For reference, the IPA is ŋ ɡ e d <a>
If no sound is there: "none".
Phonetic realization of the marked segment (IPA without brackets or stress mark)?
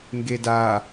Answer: a